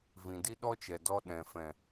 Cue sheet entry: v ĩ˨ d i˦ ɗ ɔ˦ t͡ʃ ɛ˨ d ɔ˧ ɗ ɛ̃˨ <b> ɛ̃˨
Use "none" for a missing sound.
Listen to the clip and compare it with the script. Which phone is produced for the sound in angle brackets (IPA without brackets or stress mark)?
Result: f